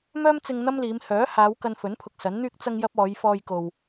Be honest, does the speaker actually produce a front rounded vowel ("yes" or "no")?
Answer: yes